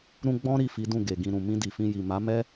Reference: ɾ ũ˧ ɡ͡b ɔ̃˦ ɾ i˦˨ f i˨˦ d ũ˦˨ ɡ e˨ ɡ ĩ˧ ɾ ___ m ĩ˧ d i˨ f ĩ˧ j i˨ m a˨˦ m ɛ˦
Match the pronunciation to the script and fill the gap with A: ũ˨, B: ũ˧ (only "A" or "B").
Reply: A